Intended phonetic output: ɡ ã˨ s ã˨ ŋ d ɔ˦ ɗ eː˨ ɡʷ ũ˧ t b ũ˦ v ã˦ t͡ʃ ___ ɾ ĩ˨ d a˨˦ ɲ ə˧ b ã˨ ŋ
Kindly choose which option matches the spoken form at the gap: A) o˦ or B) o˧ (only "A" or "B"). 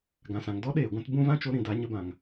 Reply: B